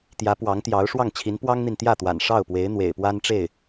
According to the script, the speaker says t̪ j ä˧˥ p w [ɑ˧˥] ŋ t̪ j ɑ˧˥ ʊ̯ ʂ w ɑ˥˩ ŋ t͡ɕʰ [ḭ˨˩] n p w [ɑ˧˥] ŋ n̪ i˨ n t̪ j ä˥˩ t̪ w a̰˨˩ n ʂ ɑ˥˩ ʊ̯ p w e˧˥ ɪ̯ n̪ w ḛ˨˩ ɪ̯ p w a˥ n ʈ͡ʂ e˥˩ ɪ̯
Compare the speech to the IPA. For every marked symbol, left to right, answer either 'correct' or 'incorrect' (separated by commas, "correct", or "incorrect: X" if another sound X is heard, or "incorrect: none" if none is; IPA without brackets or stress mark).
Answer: correct, incorrect: i˧˥, incorrect: ɑ˥